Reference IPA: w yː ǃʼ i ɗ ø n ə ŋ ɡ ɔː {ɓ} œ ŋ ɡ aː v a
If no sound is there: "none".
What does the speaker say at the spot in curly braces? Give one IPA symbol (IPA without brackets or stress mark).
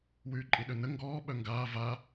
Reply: ɓ